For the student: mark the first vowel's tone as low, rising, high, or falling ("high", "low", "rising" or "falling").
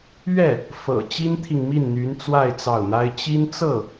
falling